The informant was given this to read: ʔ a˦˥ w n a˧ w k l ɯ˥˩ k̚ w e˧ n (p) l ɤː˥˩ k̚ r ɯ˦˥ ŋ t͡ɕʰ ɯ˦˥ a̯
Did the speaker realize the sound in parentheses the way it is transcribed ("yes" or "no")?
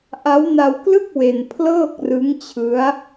no